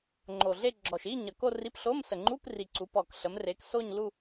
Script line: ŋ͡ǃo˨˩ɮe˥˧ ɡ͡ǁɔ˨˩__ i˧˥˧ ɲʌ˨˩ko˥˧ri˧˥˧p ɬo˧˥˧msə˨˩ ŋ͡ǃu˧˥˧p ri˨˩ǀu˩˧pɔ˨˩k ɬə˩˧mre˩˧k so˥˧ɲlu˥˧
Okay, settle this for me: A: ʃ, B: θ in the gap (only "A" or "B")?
A